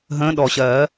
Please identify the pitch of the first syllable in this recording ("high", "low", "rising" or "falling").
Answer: rising